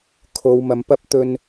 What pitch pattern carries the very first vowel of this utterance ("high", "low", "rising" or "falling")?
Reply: low